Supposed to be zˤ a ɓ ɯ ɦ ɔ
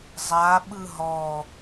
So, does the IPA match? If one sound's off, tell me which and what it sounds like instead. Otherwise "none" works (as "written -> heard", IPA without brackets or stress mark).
none